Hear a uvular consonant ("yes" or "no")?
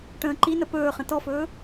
yes